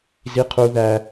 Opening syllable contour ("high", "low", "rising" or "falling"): high